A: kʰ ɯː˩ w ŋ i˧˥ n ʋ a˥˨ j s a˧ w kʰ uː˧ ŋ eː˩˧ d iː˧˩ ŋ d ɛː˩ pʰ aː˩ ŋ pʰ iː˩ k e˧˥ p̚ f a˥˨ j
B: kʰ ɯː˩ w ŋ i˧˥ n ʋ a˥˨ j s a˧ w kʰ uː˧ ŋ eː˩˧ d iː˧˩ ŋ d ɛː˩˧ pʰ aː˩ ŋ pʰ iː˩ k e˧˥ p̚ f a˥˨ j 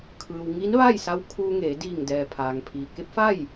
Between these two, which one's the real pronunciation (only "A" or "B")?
A